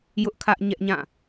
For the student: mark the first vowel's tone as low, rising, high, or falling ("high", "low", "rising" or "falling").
high